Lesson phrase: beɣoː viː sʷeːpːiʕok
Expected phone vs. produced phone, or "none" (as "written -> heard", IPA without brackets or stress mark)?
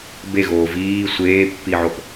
none